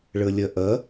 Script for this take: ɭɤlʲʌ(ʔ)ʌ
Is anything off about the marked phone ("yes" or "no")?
no